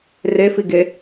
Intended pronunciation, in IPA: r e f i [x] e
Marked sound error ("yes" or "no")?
yes